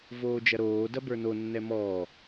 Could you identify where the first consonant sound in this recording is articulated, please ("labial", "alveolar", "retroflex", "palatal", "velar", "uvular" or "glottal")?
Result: labial